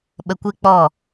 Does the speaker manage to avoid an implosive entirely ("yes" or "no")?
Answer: no